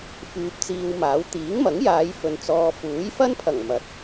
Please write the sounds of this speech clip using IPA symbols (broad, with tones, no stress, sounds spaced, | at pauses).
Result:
f yː˧ p̚ t͡s iː˧ w m aː˨˥ w t̪ iː˨˥ ŋ m ɐ˨˥ ŋ j aː˨˧ j f ɵ˨ n t͡s ɔː˧ f uː˨˥ j f ɐ˥ n pʰ ɐ˨˩ ŋ m ɐ˨ t̚